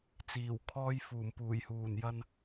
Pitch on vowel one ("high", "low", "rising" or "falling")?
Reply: low